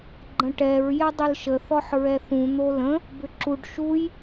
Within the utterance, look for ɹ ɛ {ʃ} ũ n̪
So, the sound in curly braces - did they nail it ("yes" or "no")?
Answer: no